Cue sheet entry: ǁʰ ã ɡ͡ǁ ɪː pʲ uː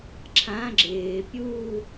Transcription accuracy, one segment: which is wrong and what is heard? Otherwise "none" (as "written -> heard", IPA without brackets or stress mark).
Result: none